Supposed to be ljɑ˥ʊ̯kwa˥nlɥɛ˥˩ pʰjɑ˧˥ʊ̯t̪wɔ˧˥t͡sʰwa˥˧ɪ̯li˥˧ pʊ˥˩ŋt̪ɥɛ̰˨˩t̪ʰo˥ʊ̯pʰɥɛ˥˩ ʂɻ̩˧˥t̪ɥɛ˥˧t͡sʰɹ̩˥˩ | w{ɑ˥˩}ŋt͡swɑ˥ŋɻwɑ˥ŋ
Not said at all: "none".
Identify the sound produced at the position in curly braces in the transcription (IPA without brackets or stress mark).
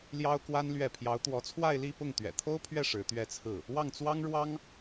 ɑ˥˩